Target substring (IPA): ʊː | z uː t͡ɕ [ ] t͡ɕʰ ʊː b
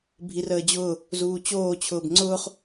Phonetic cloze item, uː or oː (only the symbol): oː